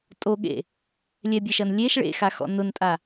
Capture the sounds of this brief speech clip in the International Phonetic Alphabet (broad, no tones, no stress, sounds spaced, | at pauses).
tʼ o ɠ ḛ | lʲ ɛ bʲ e ʃ ɐ n lʲ e ʃ ɭ ḛ x a x ɔ̰ n ʊ n tʼ a